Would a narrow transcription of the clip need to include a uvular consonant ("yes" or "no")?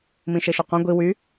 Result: yes